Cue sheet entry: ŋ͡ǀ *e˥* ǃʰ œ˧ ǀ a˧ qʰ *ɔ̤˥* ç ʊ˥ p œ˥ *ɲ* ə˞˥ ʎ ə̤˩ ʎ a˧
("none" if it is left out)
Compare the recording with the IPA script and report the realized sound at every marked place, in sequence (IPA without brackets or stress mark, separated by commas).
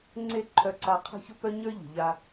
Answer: e˥, ə̤˥, ɲ